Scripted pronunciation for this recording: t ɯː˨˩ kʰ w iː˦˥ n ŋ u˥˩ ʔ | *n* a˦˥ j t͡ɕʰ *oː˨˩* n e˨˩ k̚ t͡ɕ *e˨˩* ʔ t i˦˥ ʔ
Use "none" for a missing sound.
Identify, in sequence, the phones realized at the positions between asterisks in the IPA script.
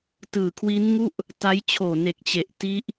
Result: t, oː˨˩, e˨˩

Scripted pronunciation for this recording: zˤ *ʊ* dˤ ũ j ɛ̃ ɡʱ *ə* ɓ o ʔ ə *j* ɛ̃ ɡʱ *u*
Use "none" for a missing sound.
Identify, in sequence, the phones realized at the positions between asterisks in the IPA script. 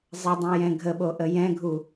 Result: ə, ə, j, u

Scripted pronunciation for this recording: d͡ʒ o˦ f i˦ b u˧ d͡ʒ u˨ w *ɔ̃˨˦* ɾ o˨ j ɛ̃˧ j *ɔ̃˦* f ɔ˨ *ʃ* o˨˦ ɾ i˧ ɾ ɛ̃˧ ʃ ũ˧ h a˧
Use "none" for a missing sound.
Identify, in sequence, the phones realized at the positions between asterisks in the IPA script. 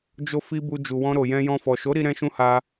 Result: ɔ̃˧, ɔ̃˧, ʃ

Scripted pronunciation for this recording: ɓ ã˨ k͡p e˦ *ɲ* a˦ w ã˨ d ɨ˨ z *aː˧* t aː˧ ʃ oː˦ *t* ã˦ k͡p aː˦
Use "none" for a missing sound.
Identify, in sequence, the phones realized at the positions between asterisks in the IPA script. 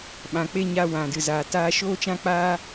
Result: ɲ, aː˨, t͡ʃ

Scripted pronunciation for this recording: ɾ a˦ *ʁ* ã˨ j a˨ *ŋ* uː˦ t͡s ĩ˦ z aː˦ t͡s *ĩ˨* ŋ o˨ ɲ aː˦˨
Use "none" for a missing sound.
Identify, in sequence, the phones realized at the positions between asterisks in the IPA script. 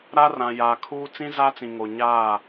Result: r, kʰ, ĩ˨

